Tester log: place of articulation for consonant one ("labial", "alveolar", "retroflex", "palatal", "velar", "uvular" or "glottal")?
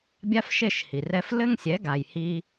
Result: labial